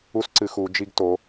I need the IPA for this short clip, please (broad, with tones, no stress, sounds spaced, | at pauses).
u˥ s ǀ ɨ˧˥ x u˧˥ d͡ʒ i˥ ɡ t o˧˥